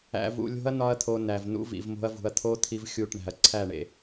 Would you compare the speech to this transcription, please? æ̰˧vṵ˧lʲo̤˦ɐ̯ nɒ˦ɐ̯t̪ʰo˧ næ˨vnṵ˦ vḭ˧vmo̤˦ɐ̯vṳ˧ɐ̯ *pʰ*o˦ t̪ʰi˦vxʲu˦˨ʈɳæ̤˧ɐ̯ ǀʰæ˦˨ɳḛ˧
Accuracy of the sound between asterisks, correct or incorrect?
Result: incorrect